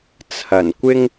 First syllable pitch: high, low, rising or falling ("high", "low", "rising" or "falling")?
low